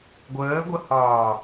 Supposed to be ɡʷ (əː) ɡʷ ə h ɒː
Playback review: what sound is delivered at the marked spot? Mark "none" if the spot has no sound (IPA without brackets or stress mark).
əː